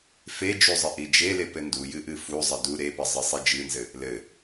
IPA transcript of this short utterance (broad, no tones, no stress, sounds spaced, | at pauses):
f e d͡ʒ u zˤ ɘ ʔ i d͡ʒ e l e p ɘ n d u j ɨ ʔ ɨ f u zˤ ɘ d u ɾ e p ə zˤ ɘ sˤ i d͡ʒ ɨ n z ɘ | l ɘ